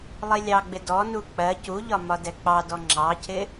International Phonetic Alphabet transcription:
lˠilʲɑɡ͡bɪ dɔnu k͡pɜ cuʎɒ mɒdɛk͡pɑdɔ ŋ͡ǁɑcʰɪ

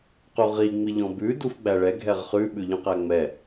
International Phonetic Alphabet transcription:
quʁi ŋ͡miʎɔ̃bʉ dufɡ͡bæɭɛ ɡʱɛʁχʉ ɓʉʎɔ̃qæŋ͡mɛ

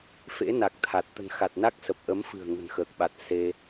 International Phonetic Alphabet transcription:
fḛ˧˥na˨˩k̚t̪ʰa˨˩t̚ t̪ə̤˨˩nxa˨˩t̚na˦˥k̚ sə˨˩p̚ʔə˨˦mfɨ̤˨˩ə̯ ŋə̤˨˩nxəː˨˩k̚ɓa˨˩t̚ se˧

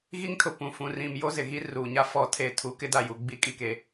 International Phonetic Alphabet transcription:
ɣi˦ŋtʰʊ˨ pũ˨ fũ˨rĩ˨m jo˦zɪ˨ɣi˦ ruː˨ɲa˦ fɔ˦tʰe˦˨ tʰu˨˦kɪ˦da˨ju˨ ɡ͡bi˦ kʼi˨ke˨

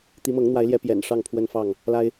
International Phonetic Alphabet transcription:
t̪i˨˦mɤ˨˦ŋn̪wa˨˦ɪ̯ljɛ˨˦ pjɛ̰˨˩nʂɑ˥˨ŋpʰwə˦nfɑ˥˨ŋ | la˦ɪ̯

